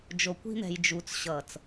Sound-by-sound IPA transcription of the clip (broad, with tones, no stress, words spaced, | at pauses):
d͡ʒo˨kʷi̤˦n̪ɛ̤˨j d͡ʒuː˨t͡sɕʌː˨t͡s